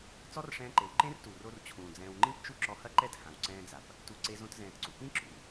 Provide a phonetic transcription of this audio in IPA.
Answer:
t͡sɔ˦rʂɛ̃ː˧ǃe˨w ǃẽ˦rtu˨ro˧r t͡ɕʰũː˨d͡zɛ̃ː˧w ŋ͡ǃĩ˦pt͡ʃu˦ ǁɔ˧hɐ˦ǃɛ˦˨t hã˨wǀɛ̃ː˧d͡za˨p | tu˨ ǀe˧zõ˧t zɛ̃ː˨tǀṵ˨pĩ˦ ǁṵ˨

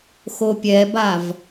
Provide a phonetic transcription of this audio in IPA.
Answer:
xopʲɛbav

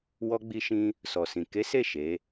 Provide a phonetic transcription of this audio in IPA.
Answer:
wɔ˧ ɡ͡bi˧ʃĩ˧ | sɔ˨sĩ˨ ke˨˦se˦˨ ʃe˨˦

